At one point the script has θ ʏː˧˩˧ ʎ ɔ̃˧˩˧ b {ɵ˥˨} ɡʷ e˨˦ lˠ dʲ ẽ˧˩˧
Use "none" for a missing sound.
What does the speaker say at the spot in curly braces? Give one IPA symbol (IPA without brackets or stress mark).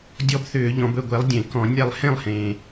ɵ˥˨